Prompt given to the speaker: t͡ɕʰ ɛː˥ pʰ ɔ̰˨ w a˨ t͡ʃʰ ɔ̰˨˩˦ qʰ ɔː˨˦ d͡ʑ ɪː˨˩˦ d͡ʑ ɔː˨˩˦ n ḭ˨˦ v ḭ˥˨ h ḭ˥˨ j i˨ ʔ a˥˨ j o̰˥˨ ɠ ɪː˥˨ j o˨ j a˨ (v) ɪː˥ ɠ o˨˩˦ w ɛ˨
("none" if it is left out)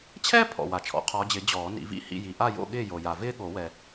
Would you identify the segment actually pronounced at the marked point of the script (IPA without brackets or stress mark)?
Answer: v